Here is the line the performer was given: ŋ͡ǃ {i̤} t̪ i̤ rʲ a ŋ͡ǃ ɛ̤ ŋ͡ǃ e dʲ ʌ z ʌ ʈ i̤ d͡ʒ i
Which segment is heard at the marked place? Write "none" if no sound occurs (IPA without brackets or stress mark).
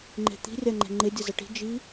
e̤